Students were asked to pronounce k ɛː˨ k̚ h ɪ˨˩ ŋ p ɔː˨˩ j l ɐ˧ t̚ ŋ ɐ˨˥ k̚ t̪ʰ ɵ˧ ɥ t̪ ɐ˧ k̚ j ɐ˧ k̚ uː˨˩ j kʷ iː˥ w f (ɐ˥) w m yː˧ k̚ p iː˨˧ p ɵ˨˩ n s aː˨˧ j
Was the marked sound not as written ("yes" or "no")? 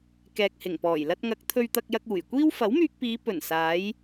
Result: yes